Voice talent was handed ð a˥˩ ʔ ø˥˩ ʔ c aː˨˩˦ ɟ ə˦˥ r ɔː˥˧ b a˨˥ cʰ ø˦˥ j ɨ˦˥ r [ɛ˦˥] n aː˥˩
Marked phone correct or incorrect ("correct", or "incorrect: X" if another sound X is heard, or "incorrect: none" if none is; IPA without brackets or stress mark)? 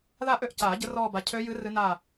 incorrect: ɨ˦˥